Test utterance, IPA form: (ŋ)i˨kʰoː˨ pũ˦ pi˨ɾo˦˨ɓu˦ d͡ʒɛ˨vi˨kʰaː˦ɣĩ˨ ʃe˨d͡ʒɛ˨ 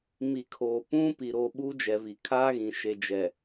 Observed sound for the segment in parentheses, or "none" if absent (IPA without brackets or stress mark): m